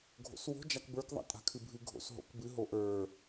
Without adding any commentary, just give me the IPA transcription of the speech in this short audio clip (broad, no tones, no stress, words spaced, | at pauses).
ɡʱo̰swo̤ d͡ʒakbə˞kðˤa̰ tʼa̤kʰɨbʱɨ ɡʱo̰sɦo̰kbɨ ɦoʔə˞